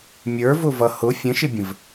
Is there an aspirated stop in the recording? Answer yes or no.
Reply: no